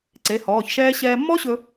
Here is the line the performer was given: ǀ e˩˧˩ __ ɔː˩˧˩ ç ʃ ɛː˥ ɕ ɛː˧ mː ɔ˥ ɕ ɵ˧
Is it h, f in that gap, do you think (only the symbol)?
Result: h